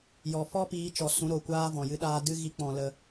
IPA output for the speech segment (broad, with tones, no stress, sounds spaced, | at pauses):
j ɔ˨ f ɔ˦ p iː˨˦ t͡ʃ ɔ˨ s ũ˨˦ ɾ o˨ kʷ aː˦ v ɔ̃˨ j ɨ˦ ɗ aː˦ d ɨ˦ ɣ i˦ k͡p ɔ̃˧ l ə˧